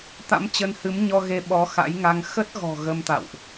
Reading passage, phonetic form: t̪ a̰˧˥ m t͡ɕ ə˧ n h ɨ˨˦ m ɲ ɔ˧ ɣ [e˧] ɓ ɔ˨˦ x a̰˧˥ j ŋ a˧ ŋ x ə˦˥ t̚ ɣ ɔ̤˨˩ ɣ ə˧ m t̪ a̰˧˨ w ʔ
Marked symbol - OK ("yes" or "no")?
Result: yes